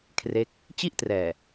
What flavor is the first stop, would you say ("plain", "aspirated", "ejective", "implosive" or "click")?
aspirated